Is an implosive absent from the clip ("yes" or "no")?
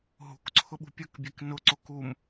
no